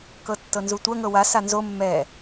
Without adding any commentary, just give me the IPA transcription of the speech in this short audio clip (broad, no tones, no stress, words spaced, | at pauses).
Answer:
kɤtːɤnzutʷɐ ŋɤwa sanzo mːɛ